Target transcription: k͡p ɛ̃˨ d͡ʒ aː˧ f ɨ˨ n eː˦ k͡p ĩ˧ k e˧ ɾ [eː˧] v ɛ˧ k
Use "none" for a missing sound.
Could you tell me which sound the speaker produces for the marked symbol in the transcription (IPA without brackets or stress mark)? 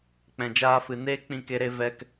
e˧